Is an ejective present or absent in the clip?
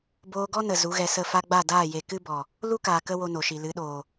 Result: absent